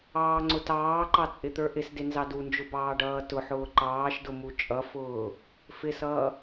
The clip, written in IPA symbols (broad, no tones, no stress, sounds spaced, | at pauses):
ɑː ŋ͡ǀ ʊ t ɑː ǃ ɑ t͡sʼ ɪ t̪ ə˞ ʔ ɪ s d ɪ n z ɑ d u n d͡ʒ ʊ b ɑː ɖ ʌː t ʊ ħ ʊː ǃ ɑː ʃ d ʊ m u t͡ʃʼ ʌ f ʊː | f ɪ s ʌː